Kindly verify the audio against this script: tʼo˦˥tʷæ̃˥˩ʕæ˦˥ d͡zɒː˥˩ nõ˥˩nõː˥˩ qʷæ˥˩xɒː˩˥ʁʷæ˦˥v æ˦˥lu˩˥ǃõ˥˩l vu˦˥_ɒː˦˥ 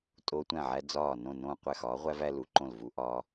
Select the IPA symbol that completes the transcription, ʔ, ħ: ʔ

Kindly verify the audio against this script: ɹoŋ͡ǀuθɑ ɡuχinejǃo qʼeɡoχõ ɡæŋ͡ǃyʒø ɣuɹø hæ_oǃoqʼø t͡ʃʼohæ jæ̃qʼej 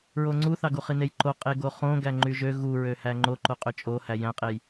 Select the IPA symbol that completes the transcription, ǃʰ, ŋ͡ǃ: ŋ͡ǃ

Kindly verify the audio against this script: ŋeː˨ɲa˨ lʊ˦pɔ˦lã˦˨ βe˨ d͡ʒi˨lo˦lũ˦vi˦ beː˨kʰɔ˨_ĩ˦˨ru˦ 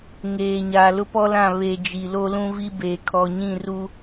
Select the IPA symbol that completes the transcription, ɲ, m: ɲ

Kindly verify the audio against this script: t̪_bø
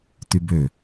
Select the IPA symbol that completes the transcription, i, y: y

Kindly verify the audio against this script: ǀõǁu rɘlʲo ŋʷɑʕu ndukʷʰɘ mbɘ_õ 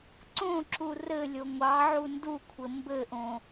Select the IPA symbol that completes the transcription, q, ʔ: ʔ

